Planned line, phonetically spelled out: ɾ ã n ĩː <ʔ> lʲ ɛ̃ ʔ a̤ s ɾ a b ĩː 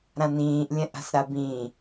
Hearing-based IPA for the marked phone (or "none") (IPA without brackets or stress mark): ʔ